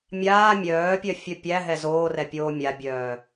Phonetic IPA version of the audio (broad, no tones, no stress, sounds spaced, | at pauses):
mʲ aː mʲ œː pʲ œ fʲ œ pʲ æ ɦ ɛ z oː r ɛ pʲ oː mʲ a bʲ œː